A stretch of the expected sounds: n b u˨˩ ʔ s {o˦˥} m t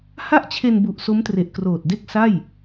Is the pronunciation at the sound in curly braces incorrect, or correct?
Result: correct